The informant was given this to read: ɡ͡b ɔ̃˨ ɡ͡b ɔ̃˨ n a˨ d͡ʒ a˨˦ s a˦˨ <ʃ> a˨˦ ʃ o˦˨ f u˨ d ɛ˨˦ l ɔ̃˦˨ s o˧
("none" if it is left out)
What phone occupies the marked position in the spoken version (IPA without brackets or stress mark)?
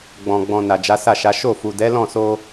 ʃ